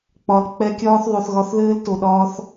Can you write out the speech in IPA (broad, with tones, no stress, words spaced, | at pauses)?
k͡pɒ˨l k͡pɛ˧ kʲɒː˦θðˤo˨θɣɒ˧θðɘː˦l to˨ɗɒː˧θ